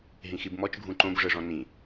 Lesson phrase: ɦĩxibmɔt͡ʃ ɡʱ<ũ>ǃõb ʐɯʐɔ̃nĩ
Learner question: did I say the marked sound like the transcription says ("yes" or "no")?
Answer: yes